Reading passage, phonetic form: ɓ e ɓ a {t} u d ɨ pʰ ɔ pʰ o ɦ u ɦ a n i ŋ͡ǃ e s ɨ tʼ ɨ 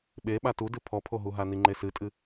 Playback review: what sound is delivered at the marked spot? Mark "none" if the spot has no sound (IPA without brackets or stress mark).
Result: t